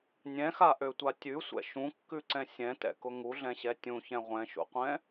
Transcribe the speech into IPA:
nʲ ɛ̃ x a ʔ ø tʷ a tʲ ʉ sʷ ɛ̰ ʃ ũ kː ʉ ǀ ɛ̃ sʲ ɛ̃ t ɛ̰ k ʊ ŋ u ɮ ɛ̃ ɕ ɛ tʲ ũ ç ɛ̃ ʁʷ ɛ̃ ʃ ṵ qʷ ɛ̃

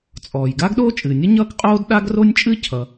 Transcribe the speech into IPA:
t͡sʼ ɔː˩ j ɡ aː˥ ɡ ɗ oː˥ t͡ʃʼ ɨː˩ nʲ ʌ˥ ɲ ʌː˥ k qʼ oː˥ d ɗ a˥ ɡ r o˥ nʲ t͡ʃʼ ɨ˥ cʰ ʌ˩

